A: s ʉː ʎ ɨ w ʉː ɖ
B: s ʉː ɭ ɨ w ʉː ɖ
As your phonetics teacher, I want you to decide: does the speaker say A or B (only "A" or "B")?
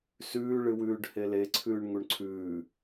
B